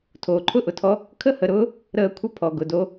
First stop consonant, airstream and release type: aspirated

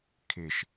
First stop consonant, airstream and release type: aspirated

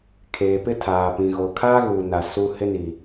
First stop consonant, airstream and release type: aspirated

